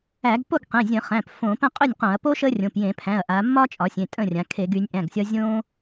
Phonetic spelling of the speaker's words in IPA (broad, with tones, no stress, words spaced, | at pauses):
æ˧˩˧ɡpo˥˩ɡqẽ˩˧˩ zʲə̃˧˩˧χæ̃˩˧˩p fõ˧˩˧pə̃˥˩ qʼø˥˩nʲqõ˧˩˧ɐ̯ po˦ ʃə˦rʲõ˩˧˩p jẽ˧˩˧pʰæ̃˩˧˩ɐ̯ʔa˩˧ mːɒ˦t͡ʃʼɒ˩˧sʲẽ˩˧˩ tʼə̃˥˩rʲã˩˧kʰe˧˩˧ɡ y˩˧nʲʔæ̃˩˧˩ɡsʲɒ˦ zʲõ˦